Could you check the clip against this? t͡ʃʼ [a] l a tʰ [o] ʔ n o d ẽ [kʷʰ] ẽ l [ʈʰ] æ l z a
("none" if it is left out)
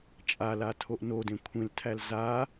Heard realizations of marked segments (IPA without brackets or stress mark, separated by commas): a, o, kʷʰ, tʰ